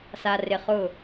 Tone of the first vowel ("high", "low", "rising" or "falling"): low